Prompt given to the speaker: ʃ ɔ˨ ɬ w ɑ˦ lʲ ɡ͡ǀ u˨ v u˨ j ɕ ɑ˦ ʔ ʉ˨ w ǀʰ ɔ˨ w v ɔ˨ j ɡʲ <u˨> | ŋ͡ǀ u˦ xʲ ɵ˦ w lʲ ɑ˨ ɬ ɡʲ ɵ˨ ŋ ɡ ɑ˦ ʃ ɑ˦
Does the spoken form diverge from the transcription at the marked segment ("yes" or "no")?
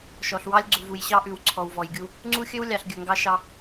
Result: yes